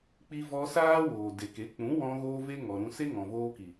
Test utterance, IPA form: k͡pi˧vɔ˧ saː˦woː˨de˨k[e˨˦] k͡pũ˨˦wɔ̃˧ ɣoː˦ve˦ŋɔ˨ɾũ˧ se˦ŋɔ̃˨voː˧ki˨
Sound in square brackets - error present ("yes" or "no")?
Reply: no